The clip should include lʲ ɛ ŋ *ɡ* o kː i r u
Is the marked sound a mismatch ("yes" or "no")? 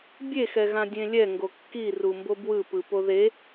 no